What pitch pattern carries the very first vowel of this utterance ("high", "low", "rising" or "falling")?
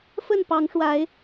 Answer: falling